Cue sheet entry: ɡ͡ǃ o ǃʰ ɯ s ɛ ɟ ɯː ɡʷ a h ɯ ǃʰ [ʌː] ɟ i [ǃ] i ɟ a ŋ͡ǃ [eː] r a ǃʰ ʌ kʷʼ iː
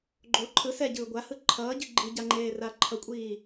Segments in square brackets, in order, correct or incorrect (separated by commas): correct, incorrect, correct